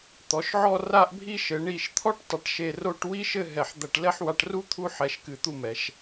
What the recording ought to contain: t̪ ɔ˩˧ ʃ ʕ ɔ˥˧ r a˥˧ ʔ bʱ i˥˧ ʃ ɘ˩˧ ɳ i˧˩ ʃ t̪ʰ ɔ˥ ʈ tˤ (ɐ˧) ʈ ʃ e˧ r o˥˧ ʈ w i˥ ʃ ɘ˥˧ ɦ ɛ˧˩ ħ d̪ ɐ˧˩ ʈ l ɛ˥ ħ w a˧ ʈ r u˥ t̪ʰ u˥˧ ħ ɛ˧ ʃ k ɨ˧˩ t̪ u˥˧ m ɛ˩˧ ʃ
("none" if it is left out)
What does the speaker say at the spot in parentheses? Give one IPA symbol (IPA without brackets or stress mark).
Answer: ɐ˧